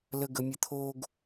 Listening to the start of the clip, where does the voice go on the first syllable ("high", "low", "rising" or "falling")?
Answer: high